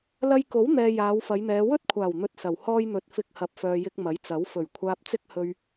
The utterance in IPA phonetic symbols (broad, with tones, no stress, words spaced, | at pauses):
lɐ˧jko˨˥wn̪ɛː˨ jaː˨˧wfɐ˨˧jn̪ɛː˨˧ wɵ˥t̚kʷʰaː˨˩wn̪ɵ˨t̚ sɐ˨˩whɔː˥jn̪ɵ˧t̚ fɪ˧k̚hɐ˨p̚fœː˨jɪ˧k̚ mɐ˨˥jt͡sɐ˨˥w fɵ˨˩ɥkʷʰaː˧p̚t͡sɪ˥k̚ hɵ˧ɥ